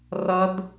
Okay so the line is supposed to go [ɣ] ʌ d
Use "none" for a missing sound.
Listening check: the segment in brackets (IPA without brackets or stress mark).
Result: r